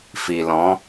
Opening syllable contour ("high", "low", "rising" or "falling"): low